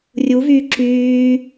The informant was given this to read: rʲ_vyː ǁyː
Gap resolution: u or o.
u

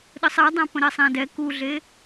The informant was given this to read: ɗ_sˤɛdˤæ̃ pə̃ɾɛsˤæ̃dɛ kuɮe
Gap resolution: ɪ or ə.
ə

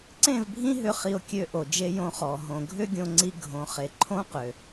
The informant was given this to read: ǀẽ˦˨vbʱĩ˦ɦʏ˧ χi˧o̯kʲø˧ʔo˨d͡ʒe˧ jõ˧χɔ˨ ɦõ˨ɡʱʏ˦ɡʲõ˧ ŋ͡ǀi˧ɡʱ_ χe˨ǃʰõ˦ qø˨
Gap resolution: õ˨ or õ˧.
õ˨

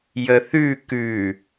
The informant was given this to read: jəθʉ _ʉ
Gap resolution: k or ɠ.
k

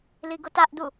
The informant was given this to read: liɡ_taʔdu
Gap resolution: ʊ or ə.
ʊ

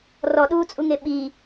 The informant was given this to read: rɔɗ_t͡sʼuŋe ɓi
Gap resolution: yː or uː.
uː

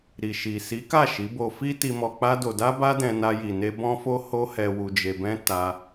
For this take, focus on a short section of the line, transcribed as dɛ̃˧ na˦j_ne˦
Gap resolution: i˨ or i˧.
i˧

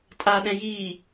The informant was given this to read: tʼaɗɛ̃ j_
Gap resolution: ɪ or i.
i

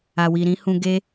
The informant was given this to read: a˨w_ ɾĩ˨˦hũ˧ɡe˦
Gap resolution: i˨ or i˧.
i˨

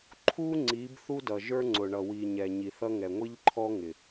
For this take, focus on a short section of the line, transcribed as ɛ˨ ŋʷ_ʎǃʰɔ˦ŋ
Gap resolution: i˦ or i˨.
i˦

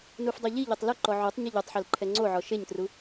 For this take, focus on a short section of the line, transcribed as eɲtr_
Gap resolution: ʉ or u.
u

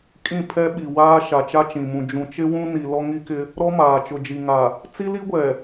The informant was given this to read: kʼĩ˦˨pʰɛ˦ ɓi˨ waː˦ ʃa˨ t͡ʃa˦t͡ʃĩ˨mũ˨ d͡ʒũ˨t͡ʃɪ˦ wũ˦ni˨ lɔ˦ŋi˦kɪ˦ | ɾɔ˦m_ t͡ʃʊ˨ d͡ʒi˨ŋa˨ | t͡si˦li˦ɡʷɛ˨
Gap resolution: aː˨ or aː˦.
aː˨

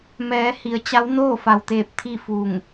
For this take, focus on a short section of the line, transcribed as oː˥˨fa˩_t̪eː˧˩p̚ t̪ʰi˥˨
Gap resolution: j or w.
w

